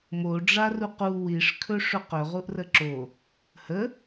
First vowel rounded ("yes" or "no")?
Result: yes